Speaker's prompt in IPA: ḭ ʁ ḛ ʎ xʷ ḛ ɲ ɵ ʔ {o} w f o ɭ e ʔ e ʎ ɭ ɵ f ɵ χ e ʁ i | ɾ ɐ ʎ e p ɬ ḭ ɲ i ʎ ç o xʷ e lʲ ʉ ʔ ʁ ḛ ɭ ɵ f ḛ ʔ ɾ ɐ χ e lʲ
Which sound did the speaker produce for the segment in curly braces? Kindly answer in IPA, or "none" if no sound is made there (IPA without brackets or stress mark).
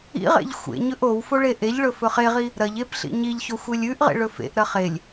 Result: o